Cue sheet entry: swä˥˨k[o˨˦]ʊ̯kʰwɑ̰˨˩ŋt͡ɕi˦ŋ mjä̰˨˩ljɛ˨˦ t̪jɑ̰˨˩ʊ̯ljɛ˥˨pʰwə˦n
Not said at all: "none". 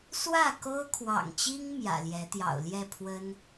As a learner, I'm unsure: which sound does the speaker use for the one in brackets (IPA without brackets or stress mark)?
o˦